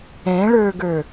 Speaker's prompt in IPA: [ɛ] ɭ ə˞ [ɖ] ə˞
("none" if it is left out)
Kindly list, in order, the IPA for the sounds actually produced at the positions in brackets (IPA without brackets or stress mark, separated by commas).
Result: ɛ̃, ɡ